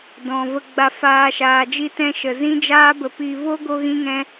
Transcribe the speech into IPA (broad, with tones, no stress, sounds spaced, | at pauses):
d ɔ̃˨ v ə˧ ɡ͡b a˧ f aː˧ ʃ aː˨ d͡ʒ i˧ t ɛ̃˧ ʃ ə˨ z ĩ˦ d͡ʒ aː˦ b ə˧ p i˧ v o˦ ɡ o˦ ɣ ĩ˦ ŋ ɛ̃˦